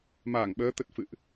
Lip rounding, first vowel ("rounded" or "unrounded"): unrounded